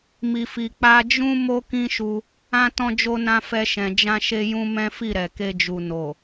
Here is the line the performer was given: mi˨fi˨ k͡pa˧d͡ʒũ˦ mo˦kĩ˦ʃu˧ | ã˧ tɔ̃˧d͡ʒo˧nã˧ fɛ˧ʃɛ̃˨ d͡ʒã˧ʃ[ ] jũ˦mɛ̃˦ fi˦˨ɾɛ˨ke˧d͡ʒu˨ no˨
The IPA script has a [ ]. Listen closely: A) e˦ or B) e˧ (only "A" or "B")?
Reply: B